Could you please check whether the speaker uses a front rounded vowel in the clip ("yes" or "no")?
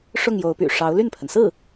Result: yes